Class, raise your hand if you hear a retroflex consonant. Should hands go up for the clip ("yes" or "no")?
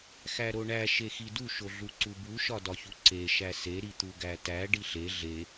yes